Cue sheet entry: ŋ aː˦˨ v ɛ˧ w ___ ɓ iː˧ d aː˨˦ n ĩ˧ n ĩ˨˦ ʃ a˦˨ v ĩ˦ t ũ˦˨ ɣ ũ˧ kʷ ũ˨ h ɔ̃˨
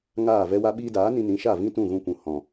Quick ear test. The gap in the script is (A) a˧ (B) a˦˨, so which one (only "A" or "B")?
A